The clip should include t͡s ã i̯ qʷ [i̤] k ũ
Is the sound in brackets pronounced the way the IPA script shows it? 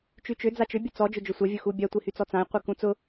no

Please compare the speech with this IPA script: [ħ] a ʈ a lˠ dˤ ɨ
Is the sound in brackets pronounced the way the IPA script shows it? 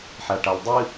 yes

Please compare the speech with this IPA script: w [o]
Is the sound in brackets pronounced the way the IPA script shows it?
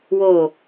yes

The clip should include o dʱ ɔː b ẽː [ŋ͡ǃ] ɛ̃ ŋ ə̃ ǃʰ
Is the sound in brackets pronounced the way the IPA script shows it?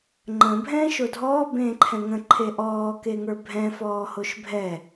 no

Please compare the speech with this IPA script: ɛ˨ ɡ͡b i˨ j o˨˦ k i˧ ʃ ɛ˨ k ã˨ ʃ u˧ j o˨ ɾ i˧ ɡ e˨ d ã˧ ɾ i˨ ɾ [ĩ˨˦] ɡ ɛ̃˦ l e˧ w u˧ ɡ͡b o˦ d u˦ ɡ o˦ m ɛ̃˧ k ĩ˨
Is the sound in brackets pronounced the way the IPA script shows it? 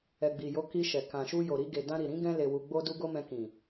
yes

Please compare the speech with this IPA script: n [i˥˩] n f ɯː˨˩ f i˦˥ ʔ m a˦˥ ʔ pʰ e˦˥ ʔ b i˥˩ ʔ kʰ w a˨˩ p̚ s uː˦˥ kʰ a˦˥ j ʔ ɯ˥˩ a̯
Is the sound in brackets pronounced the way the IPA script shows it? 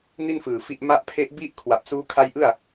yes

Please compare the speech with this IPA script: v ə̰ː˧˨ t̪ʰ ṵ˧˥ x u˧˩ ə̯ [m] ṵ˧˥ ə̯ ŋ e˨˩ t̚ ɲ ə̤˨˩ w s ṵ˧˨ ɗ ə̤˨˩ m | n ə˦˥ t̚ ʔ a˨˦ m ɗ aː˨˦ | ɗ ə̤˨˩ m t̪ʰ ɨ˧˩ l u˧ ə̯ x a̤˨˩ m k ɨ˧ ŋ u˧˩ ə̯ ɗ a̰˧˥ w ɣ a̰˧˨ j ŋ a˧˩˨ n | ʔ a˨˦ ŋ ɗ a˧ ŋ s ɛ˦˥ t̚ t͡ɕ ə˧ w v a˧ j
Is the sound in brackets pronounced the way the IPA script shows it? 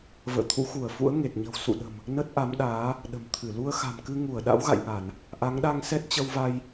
no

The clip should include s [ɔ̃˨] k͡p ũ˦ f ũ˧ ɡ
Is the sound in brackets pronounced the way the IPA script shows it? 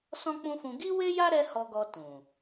no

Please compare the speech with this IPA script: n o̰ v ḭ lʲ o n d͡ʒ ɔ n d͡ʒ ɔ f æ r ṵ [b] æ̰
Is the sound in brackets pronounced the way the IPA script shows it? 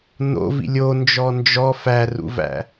no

